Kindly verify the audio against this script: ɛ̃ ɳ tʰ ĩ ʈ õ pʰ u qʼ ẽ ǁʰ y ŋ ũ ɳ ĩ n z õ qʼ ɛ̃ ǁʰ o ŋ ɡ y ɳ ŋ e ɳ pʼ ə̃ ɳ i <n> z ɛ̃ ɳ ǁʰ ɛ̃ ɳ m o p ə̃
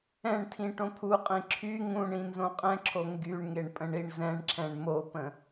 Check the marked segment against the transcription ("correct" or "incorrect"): incorrect